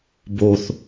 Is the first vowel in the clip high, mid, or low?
mid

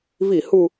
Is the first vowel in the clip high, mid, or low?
high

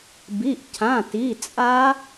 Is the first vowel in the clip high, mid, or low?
high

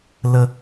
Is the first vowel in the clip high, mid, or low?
mid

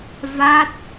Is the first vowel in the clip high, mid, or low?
low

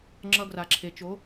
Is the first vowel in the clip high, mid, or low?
mid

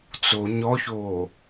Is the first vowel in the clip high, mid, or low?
mid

